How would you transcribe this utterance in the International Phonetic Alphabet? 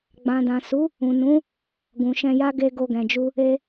ɡ͡b ã˨ d ã˨ s u˨˦ | ũ˨ n ũ˨˦ | ɡ ũ˨ ʃ ɛ̃˧ j a˦ ɡ e˧ ɡ o˧ ɡ ɛ̃˨ d͡ʒ u˧ | e˧

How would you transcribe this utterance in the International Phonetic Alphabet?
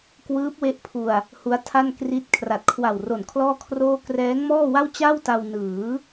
k w ɯː˦˥ p̚ w e˦˥ ʔ pʰ u˧ a̯ | h u˦˥ a̯ tʰ a˥˩ n k r i˦˥ t̚ kʰ r a˨˩ t̚ kʰ w a˨˩ w r o˨˩ n kʰ l ɔː˥˩ kʰ r oː˥˩ k r ɛː˦˥ ŋ m ɔː˥˩ w a˥˩ w t͡ɕ a˥˩ w t a˧ w n ɯː˩˦

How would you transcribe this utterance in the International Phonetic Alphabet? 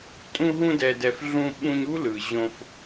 tʼ ũ˧ ɦ ũ˧ d ɛ˨ d ɛ˨ f ɮ ũ˧ ɓ ũ˧ ɲ u˦ l ɯ˨ ʑ õ˧ f

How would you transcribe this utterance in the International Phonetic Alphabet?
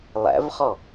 lˠ æ̰ v χ ɔ

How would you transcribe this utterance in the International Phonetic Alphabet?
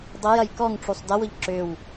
dˤ ɤ j ɐ j k ɔ ŋ ʈ͡ʂ u sˤ d ɐ w ʊ ʎ ǁ ʏ w

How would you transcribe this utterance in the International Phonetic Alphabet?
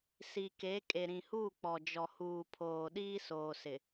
s i˨ k e˨˦ kʼ e˨ ɾ ĩ˨ h uː˦˨ k͡p ɔ˨ d͡ʒ ɔ˨ h uː˨ pʰ oː˨ ɗ iː˦ s oː˨ s ɪ˨

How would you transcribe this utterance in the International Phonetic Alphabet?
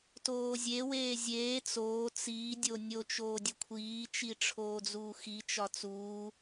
t oː zʲ e w eː zʲ eː t͡s oː t͡s iː dʲ o nʲ o t͡ʃ oː dʲ o kʷʰ iː t͡ʃ i ʈ͡ʂʰ oː d͡z uː x i t͡ʃ ɒ t͡s uː

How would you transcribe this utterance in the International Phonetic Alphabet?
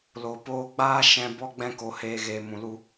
l o˨ p oː˧ ɡ͡b aː˦ ʃ ɛ̃˧ b ɔ˧ ɡ͡b ɛ̃˧ k o˨ h eː˨ ɣ eː˨ m ũ˨ l u˧

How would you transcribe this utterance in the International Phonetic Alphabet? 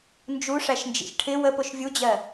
n d͡ʒ u ʂ æ ʃ n d͡ʒ ḭ ʃ ʈʰ ɪ w ə p ʊ ʃ vʲ u d͡ʑ ɜ

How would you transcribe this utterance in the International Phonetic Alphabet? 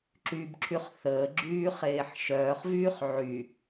ǁ y b ǁʰ y χ θ əː ɡ͡ǁ yː χ eː ħ ʃ œː χ v yː χ ʕ y

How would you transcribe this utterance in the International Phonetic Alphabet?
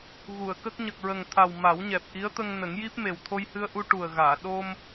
ɣ u˨˩˨ ə̯ k ə˦˥ k̚ ɲ ə˨˩ k̚ ɹ ə˨˩ ŋ t̪ʰ a˨˩ w m a˨˩˦ w ɲ ɛ˨˩ p̚ ʔ i˧˥ ə̯ t̪ ə˧ ŋ n ə˨˩˦ ŋ j i˦˥ p̚ m e˨˩ w t̪ʰ o˧ j h ɨ˧ ə̯ ʔ u˧ ʈ u˨˩ ə̯ ɣ aː˨˩˨ ɗ o˧ m

